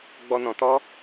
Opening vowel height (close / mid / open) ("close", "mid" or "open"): mid